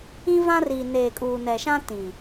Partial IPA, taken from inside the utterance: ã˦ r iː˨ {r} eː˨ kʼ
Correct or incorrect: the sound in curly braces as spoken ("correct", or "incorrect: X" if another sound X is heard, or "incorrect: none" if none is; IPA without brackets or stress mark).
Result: incorrect: n